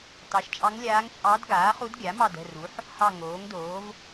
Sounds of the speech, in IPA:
t ɑ˩˥ ʃ t͡ʃʼ ɑ˧˥ ŋ lʲ aː˧˥ ŋ t͡ʃʼ ɑ˧˥ d ɡ aː˩˥ χ u˧˥ d ɡʲ a˩˥ m ɑ˦˨ d ə̤˦˨ r u˩˥ ħ | h ɑ˦˨ ŋ oː˩˥ ŋ d oː˩˥ v

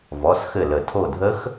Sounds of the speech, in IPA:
v ɔ˩˧˩ s x ɘ˧˩ l ə˨˩˦ tʰ o˧˩ dʱ ə˦˥ x

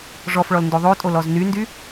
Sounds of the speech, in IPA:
ʐ ɔ f ɭ ɔ l n d o ðˤ o tʼ o l ɔ z n y n d y

